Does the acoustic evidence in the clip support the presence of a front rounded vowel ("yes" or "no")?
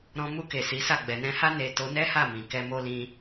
no